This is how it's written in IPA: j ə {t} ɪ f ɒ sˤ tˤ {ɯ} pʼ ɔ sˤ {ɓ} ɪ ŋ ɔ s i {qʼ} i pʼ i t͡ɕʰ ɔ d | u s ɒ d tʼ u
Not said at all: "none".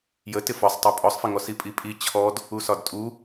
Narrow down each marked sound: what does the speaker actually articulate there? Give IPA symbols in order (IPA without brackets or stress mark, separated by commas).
t, u, f, pʼ